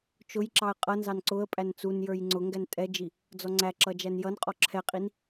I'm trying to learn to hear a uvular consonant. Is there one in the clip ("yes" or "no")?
yes